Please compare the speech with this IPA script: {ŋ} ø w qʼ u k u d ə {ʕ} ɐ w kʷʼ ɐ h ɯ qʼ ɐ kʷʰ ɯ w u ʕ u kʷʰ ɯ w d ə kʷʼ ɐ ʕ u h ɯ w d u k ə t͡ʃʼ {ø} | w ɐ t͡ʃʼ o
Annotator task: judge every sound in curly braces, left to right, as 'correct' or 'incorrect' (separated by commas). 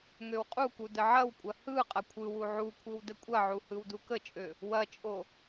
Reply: correct, correct, correct